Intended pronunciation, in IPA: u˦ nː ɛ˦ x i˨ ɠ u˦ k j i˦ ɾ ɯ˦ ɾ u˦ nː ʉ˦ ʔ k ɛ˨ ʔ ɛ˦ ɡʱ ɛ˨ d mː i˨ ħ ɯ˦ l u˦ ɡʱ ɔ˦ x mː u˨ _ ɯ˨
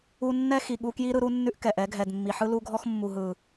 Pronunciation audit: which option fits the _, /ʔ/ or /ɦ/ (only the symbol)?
ɦ